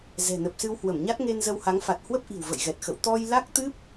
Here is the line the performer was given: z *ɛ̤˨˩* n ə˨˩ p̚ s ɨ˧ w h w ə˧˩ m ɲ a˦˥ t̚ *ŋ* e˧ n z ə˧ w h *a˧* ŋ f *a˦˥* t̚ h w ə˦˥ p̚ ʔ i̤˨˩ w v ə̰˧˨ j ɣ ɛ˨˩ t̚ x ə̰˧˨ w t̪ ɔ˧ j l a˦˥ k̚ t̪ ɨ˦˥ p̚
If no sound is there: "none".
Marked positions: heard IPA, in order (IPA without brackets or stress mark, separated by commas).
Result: ɛ̤˨˩, ŋ, a˨˦, a˨˩